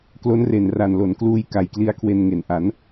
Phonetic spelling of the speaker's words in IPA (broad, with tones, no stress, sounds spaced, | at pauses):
k l o˦˥ n r e˨˩ n r a˨˩ n l o˩˦ n k l uː˧ j k a˨˩ j k l i˦˥ a̯ kʰ w e˧ n ŋ e˩˦ n ʔ a˩˦ n